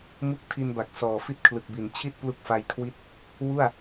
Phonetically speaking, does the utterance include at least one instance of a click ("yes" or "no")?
no